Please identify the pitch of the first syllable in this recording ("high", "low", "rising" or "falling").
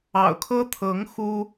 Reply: low